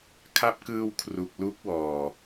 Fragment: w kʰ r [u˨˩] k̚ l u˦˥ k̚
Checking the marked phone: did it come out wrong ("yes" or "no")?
no